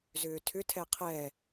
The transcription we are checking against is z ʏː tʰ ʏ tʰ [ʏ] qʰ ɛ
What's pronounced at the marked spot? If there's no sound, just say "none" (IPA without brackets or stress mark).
ɛ